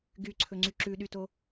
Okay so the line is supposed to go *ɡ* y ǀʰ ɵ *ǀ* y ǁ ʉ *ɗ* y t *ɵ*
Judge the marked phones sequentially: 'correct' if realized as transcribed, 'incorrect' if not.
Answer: correct, incorrect: ŋ͡ǀ, correct, incorrect: o

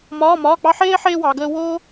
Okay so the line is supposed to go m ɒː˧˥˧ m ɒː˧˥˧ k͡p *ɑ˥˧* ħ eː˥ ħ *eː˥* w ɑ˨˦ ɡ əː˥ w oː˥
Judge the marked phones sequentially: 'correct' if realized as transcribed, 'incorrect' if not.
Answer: incorrect: ɑ˥, correct

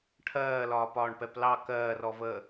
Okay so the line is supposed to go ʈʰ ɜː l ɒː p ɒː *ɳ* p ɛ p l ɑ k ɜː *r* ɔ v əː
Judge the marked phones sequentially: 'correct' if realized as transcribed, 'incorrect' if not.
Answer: correct, correct

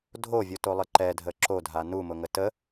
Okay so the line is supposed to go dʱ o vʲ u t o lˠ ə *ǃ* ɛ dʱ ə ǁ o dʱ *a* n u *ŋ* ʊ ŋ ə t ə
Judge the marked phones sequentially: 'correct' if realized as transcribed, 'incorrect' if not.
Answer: correct, correct, incorrect: m

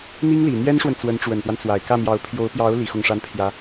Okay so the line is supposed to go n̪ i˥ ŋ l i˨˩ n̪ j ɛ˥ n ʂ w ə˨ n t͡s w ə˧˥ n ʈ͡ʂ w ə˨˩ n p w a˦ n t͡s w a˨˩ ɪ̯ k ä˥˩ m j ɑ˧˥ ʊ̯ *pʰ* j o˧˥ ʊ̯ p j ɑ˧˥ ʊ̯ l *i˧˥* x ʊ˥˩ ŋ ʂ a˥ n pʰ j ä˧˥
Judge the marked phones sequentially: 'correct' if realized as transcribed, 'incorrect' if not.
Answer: correct, correct

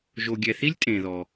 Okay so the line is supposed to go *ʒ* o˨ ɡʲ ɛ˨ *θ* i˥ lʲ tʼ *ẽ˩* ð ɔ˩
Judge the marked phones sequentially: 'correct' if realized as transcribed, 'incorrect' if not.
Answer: correct, correct, correct

